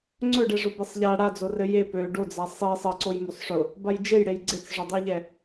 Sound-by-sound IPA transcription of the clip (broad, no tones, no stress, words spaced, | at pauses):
ŋ͡ǀɵɖɛʐʊ besˤʎa ɽad͡zo rɘje pø ɖod͡za sˤi sˤɘǀoj mosˤʂʊ | bajd͡ʒejɽej ɡ͡ǀet͡sʐʊdˤʊjʎɛ